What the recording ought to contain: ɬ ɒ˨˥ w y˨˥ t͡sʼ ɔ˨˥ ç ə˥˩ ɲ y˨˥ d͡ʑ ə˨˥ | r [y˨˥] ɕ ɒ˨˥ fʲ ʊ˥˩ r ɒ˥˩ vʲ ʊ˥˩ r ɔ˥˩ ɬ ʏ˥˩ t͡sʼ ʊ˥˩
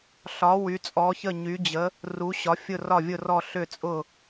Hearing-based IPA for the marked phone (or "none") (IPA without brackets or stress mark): u˨˥